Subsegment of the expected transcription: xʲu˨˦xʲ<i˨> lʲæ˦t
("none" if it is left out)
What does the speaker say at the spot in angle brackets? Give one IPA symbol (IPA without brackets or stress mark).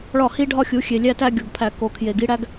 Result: e˨